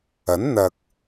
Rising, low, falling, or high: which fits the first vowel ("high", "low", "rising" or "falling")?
rising